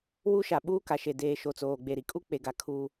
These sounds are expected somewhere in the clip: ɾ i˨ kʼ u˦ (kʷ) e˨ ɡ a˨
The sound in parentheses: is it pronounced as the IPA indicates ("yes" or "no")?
no